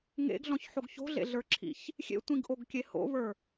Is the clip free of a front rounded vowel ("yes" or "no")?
yes